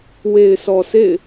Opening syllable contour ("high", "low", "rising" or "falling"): low